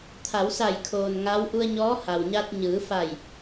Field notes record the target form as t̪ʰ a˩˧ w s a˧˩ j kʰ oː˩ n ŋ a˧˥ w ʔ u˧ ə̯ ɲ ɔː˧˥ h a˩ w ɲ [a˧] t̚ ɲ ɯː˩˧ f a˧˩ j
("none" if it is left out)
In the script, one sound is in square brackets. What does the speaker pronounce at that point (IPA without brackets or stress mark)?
a˧